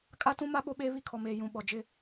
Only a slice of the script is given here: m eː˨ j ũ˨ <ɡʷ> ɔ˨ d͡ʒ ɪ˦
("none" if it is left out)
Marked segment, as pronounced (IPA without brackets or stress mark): ɓ